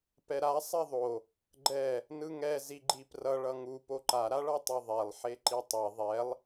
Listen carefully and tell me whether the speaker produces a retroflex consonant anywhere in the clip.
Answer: yes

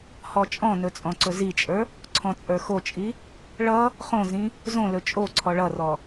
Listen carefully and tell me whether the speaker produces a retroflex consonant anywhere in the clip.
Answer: yes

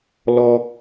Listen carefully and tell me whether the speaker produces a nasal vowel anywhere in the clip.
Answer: no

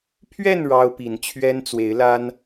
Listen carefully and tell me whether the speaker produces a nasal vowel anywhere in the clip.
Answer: no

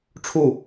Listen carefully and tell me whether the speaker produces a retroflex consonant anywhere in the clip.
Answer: yes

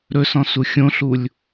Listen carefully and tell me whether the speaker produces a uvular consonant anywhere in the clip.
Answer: no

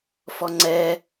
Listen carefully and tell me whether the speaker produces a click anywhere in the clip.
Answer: yes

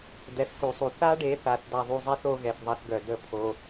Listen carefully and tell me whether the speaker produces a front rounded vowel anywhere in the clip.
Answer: yes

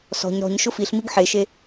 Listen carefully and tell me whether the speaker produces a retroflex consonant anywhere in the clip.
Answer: no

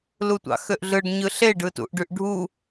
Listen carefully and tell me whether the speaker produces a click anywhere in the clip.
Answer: no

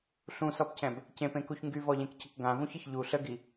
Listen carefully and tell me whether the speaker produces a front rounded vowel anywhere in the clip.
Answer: yes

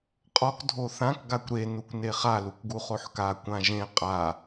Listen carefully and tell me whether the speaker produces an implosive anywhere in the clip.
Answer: no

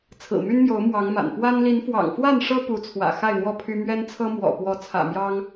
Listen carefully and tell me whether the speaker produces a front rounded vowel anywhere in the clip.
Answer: yes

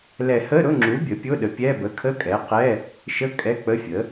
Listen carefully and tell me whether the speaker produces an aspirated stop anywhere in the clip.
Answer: yes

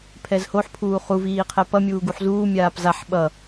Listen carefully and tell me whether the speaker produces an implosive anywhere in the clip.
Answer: yes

